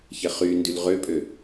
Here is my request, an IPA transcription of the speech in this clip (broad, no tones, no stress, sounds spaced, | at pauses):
ç ɛ χ y n d y l ʁ ø pʼ ø